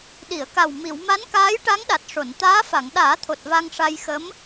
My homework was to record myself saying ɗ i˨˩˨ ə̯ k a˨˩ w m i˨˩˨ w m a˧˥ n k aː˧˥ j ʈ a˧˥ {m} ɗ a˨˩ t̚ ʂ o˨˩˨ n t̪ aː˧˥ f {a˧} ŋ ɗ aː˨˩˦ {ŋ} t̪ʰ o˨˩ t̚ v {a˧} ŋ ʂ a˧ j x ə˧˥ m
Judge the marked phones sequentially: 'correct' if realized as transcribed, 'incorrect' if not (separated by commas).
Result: incorrect, incorrect, incorrect, correct